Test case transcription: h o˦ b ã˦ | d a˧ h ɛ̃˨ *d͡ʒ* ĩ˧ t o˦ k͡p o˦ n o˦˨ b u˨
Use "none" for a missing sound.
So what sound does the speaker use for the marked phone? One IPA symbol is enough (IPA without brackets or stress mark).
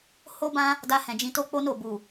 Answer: d͡ʒ